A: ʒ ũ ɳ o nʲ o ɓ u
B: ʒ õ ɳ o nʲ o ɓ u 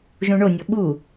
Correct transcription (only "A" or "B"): A